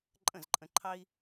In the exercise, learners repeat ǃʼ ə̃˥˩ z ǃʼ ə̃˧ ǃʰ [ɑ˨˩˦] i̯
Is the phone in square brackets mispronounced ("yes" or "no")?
yes